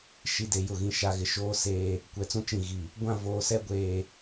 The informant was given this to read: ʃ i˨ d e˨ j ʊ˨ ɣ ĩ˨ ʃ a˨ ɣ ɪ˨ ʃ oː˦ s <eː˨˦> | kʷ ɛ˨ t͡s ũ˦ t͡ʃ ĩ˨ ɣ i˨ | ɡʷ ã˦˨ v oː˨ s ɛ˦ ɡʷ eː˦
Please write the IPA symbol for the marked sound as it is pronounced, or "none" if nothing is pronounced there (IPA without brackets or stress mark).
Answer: eː˦